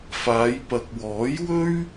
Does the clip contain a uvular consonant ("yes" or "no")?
no